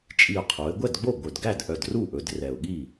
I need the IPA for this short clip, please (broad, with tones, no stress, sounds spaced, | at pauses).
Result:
t͡ʃʼ i˨˩ ʊ̯ qʰ o˩˧ ɪ̯ ɡʷ ɛ˥˩ d ɡ͡b o˥˩ ɡʷ œ˨˩ d ɡ æ˥˩ d ʔ œ˨˩ d r u˥˩ ʔ ɵ˩˧ d r ɛ˨˩ ʊ̯ ɠ i˥˩